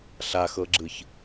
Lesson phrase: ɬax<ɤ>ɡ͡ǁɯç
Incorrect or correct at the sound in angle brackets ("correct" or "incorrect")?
correct